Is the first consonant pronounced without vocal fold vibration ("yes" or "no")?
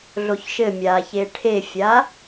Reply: no